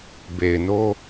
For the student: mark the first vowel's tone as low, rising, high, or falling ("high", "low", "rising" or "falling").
low